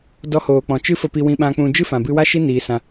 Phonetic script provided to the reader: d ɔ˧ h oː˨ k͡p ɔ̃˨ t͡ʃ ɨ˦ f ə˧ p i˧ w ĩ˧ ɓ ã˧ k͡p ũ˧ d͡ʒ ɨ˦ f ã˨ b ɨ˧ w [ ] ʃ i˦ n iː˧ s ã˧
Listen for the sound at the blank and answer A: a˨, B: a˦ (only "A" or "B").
B